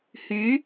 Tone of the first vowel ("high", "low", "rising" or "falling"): rising